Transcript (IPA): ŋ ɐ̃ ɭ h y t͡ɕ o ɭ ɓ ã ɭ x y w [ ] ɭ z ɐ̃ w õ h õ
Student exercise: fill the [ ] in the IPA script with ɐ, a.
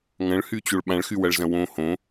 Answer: ɐ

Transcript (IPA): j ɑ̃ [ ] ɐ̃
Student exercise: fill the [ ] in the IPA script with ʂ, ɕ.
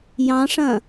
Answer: ʂ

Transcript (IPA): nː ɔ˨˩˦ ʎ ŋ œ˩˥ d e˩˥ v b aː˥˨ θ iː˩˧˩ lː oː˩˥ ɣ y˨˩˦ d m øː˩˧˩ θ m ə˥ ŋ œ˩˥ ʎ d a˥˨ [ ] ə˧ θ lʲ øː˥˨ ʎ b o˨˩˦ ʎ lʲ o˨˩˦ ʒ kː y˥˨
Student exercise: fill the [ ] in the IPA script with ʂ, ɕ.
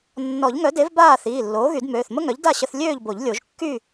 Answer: ɕ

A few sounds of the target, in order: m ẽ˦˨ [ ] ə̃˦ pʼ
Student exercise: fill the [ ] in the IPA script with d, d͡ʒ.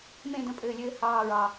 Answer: d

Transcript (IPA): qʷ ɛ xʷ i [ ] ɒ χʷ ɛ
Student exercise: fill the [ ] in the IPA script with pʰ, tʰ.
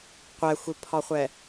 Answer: pʰ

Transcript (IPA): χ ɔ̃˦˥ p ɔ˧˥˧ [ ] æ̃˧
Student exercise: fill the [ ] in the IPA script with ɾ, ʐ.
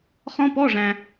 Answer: ʐ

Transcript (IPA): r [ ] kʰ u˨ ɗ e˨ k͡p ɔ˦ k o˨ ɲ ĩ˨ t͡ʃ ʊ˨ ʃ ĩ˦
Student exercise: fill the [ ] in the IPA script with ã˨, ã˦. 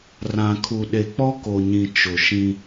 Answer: ã˨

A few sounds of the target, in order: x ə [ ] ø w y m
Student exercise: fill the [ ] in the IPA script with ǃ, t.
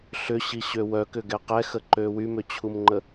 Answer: ǃ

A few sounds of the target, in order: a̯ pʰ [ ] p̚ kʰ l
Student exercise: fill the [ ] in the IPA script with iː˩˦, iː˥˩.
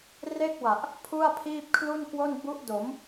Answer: iː˥˩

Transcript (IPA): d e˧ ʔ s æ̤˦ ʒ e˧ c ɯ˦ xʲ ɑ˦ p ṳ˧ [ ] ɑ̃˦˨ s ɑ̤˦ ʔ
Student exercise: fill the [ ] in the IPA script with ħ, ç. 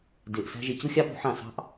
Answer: ħ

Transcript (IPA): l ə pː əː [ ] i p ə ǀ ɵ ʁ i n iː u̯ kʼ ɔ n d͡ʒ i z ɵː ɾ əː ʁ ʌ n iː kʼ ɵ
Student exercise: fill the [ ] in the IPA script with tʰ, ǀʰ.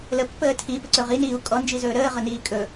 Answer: tʰ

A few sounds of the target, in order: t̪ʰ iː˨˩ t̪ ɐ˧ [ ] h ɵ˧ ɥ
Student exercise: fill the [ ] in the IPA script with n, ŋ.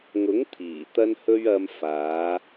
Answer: n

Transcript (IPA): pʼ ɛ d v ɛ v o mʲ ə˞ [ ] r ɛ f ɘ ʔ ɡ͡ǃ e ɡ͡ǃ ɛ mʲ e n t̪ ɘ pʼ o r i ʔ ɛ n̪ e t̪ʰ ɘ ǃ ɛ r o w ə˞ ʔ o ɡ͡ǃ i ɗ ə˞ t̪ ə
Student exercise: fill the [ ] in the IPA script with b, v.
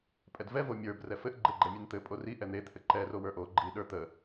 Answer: b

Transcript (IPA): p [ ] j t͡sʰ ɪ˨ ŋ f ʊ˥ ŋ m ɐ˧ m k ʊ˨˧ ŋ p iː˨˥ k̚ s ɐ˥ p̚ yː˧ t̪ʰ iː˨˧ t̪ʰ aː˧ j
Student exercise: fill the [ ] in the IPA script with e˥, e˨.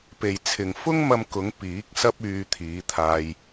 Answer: e˨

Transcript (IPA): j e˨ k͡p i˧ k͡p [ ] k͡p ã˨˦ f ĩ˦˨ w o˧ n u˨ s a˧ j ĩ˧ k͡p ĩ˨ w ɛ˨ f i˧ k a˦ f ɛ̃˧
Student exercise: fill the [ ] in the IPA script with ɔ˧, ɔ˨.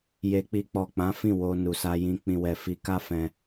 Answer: ɔ˨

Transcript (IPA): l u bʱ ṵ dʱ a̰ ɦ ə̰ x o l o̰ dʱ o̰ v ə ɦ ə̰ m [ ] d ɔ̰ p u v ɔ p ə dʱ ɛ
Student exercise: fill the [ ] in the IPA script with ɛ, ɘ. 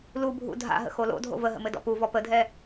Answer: ɘ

